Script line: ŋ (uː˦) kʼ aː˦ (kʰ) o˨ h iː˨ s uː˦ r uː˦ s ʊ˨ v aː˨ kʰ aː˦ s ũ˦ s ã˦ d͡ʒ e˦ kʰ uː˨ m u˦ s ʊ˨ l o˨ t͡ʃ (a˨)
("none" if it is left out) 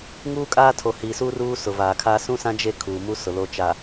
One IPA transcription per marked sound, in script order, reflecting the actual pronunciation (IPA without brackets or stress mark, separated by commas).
uː˦, tʰ, a˨